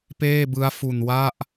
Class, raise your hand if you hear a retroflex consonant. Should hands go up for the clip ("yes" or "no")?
no